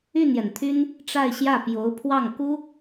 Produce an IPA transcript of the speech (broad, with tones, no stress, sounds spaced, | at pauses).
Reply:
y˥˩ n j ɛ˩ n t̪ʰ y˥ n | ʈ͡ʂ a˥˧ ɪ̯ ɕ j ä˥˩ p j o˧˥ ʊ̯ pʰ w ɑ˥˩ ŋ k u˥